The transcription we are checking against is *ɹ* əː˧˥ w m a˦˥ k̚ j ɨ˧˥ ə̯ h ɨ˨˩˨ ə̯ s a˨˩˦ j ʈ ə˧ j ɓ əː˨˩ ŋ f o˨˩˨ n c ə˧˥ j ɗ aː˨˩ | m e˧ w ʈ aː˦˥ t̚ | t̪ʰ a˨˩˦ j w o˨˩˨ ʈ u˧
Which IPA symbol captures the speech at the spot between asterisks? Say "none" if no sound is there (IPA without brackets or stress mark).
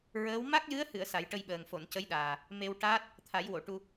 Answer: ɹ